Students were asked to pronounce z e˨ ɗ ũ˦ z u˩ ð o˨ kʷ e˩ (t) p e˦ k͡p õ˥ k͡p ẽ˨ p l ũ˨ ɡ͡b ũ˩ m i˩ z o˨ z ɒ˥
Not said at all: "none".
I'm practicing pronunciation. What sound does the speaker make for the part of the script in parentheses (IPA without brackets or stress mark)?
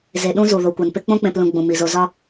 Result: n